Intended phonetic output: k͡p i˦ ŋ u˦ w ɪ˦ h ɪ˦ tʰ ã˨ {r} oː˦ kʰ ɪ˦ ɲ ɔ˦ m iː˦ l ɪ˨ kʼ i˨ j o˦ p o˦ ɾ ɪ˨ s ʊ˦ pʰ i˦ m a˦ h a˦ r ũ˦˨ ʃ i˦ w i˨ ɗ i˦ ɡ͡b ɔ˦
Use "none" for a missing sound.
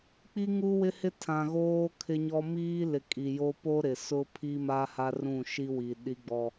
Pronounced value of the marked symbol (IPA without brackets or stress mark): ɣ